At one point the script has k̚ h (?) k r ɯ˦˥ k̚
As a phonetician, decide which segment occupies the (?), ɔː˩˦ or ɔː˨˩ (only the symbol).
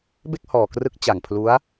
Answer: ɔː˨˩